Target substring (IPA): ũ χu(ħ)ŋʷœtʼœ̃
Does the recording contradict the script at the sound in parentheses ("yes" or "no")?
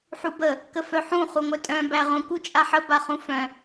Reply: yes